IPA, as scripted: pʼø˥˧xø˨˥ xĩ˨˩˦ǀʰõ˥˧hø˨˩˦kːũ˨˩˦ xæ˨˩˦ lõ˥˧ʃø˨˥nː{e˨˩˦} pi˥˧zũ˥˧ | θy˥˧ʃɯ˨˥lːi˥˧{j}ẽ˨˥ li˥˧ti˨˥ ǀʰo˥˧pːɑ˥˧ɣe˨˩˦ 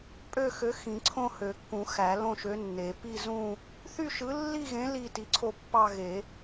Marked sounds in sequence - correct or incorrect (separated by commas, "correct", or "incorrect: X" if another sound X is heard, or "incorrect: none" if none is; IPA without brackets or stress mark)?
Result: correct, incorrect: ɣ